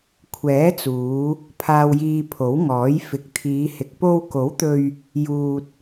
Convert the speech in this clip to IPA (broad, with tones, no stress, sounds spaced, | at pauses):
kʷʰ ɛː˨˥ t͡s uː˨˧ | pʰ aː˨ w j iː˨ pʰ o˨˥ w ŋ ɔː˨˥ j f ɪ˨˥ k̚ t̪ʰ iː˨˧ h ɪ˨ k̚ p o˧ w k o˨˥ w t̪ ɵ˧ ɥ | j uː˧ t̚